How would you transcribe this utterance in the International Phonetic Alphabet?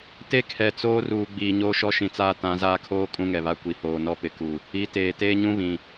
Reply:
t e˦ kʰ ɛ˨ t͡s oː˦ r uː˨ ɡ͡b iː˨ ɲ oː˦ ʃ ɔ˦ ʃ ĩ˨ t͡s aː˦ t ã˨˦ z aː˦ kʰ oː˦ kʼ ũ˦ ŋ ɛ˨ β a˦ kʷ i˨ h oː˨ n ɔ˦ p ɪ˨ k u˨ | i˨˦ t eː˨ t eː˦ ɲ ũ˦ β ĩ˨

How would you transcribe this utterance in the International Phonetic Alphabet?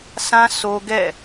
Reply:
sʰ ã˦ s o˦ ɡ ɛ̰˦˨

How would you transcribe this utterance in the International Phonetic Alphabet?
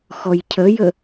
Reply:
x ɔ j cʰ ə j ə

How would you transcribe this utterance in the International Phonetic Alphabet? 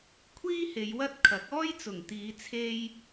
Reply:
kʷʰ iː˥ h e˨˧ j w ɐ˥ t̚ kʰ ɐ˨˥ k̚ ɔː˥ j t͡s ʊ˨˩ ŋ t̪ iː˨˧ t͡sʰ e˧ j

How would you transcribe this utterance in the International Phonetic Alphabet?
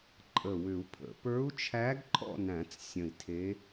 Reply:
ǃʼ ə˧˩ w ʏ˨˩˦ u̯ pʰ ə̰˨˩˦ p ə˞˧˥ u̯ t͡ʃʰ æ˧˥ ɡ ǃʰ ɔ̰˥˨ n æ̃˨˩˦ t͡s sʲ ə̃˧˩ i̯ tʰ e˧˥

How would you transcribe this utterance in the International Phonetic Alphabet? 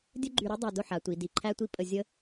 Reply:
dʲ ə˥ ɡ͡ǃ y˧ ɾ i˥ dˤ æ˧ d ʊ˥˧ ħ a˩˧ tʷ i˩˧ d i˧˩ ǃʰ æ˥ tʷ i˥ pʼ ə˧ zʲ ə˥

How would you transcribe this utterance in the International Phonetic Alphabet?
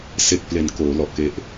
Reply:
s e˨˩ k̚ p l e˨˩ n k oː˩˦ l ɔ˨˩ ʔ k e˦˥ ʔ

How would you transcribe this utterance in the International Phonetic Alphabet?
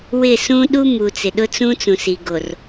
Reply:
w ɪ˦˨ s ũ˦ ɗ u˦ m u˨ t͡s ɪ˨ ɗ ʊ˦ t͡s ũ˦ t͡s ũ˨ s i˨ ɡ o˨ r

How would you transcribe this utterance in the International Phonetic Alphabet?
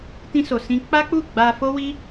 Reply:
t ĩ˧ s o˨ s ĩ˧ k͡p a˦ k͡p u˦˨ ɡ͡b a˧ f o˦ w i˦

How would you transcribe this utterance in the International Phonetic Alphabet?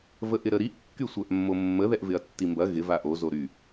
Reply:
v ə ʔ ɪ ɾ ə ɾ i ʔ kː y sʷ œ ʔ mː o mː ə ð ɛ ʔ v ɪ ɐ̯ tː i m b ɐ ɣ ɪ v a ʔ o z o ɾ y

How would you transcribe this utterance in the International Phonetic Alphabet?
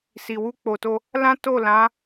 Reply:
s i˨ w u˧ k͡p o˨ t o˧ | l ã˦ t o˦˨ l ã˨˦

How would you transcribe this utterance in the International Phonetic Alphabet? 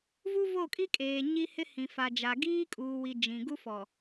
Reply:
v u˦ v o˦˨ kʼ i˦ kʼ eː˨ ɲ i˦ h ɪ˦ h ĩ˨ f a˨ d͡ʒ a˨ ɡ iː˦ kʼ uː˨ w i˨ d͡ʒ ĩ˨ ɡ u˦ f ɔ˨

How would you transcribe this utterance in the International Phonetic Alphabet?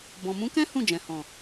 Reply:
b ɔ̃˨ m ũ˨˦ k ɛ̃˦ h ũ˦˨ d͡ʒ ɛ̃˨ h ɔ̃˨

